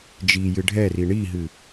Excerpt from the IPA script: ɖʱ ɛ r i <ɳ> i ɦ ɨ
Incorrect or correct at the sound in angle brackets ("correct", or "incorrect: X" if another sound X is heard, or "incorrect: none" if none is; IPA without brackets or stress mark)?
correct